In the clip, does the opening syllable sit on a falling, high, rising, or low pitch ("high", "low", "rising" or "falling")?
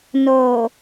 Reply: low